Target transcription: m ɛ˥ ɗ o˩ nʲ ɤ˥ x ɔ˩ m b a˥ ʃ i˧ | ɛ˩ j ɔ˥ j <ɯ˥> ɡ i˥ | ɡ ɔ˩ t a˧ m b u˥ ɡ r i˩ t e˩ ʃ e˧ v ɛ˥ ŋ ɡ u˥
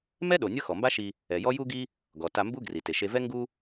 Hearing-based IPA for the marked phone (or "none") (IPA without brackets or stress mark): u˥